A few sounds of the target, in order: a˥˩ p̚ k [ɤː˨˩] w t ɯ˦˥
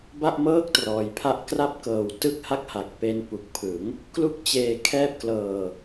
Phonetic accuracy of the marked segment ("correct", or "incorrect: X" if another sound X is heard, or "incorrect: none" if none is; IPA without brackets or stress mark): correct